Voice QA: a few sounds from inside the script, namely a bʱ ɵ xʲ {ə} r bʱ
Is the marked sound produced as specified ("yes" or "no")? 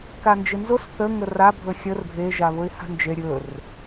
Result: yes